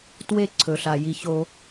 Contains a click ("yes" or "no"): yes